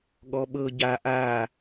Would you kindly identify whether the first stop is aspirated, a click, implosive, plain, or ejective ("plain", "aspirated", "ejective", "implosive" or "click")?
implosive